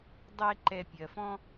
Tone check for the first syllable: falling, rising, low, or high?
high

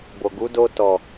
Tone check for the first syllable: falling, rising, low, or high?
low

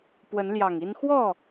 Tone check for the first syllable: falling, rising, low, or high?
rising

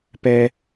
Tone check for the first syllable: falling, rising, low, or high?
high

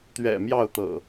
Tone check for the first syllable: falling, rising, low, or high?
low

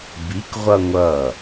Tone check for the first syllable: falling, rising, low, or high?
rising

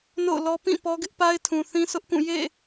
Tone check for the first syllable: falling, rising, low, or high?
falling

